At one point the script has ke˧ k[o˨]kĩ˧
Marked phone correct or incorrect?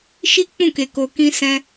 correct